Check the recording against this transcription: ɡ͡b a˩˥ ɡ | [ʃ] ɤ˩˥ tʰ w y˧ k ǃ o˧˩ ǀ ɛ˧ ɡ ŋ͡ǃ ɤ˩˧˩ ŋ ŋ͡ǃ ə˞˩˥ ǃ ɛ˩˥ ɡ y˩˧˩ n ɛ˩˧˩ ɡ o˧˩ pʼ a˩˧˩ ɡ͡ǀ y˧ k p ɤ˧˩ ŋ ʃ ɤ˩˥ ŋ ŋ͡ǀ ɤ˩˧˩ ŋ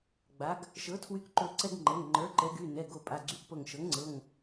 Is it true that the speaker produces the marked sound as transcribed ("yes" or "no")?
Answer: yes